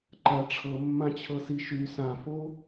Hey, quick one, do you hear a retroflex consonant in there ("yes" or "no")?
yes